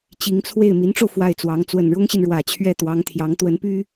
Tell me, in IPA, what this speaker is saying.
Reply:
t͡ɕi˧˥ŋt͡sʰwe˥˩ɪ̯ mi˧˥nʈ͡ʂo˧ʊ̯ fwa˥˩ɪ̯t͡swɑ˧˥ŋ t͡swə˨˩nɻʊ˥ŋɕi˨n ɻwä˨˩t͡ɕʰɥɛ˥˩t̪wɑ˧˥ŋt̪ʰjɑ˧˥ŋ t̪wə˧˥npy˥

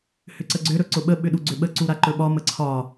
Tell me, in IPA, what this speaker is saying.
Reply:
hʏǀəɡ͡ǀʏ ɾɵǀʊɓə ɓʏɗuɡ͡ǀʏɓə ǀuɾaǃɵɓɒ məǀʰɒ

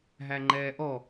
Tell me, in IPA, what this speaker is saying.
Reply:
ɦæŋ͡ǃɛːʔɔ

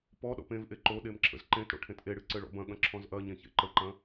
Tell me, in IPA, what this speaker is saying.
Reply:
pɔɗɔ̰p ẽvʔe ǃoɗem ǁʰə̰zǃẽtɽo̰ ʈʰẽtʔeɽɨ ǀɘɭɔ̰bɐ̃ɠɐ̃ ǁʰɔ̃zʔɐɲẽ çḛǃəǃɐ̃

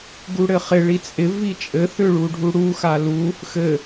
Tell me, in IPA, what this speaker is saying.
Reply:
ɡuɽɘχɪ ɭit͡sʼɪ vit͡ʃʼɘ θʏɭuɖʱu ɽuxa lu | xɘ

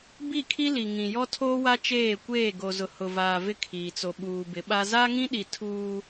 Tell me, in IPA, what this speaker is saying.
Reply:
bi˦˨kʰi˦li˨ ŋĩ˨jɔ˦tʰoː˦wa˦ t͡ʃeː˦˨kʷeː˦˨ ɡo˨zʊ˨ hʊ˨vaː˨ vɪ˦kʰiː˨t͡so˨ ɓuː˨bɪ˨˦ɓa˦ za˦ŋĩ˦ɗi˨ tʰuː˦

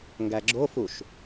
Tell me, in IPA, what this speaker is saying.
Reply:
ŋɡæɡ͡ǁofuʃ

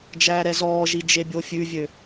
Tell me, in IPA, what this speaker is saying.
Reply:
d͡ʒæːɾɛzɔːʒi d͡ʒebʲofʲʉvʲø

